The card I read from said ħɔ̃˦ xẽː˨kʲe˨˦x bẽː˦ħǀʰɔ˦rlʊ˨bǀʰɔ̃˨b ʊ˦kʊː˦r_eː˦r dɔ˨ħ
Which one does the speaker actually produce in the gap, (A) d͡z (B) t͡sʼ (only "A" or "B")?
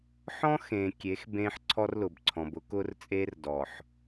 B